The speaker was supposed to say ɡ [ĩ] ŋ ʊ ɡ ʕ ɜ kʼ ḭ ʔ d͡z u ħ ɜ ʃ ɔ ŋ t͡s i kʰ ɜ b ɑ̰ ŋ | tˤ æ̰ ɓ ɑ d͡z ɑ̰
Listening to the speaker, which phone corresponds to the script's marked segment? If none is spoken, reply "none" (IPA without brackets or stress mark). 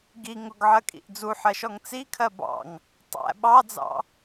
i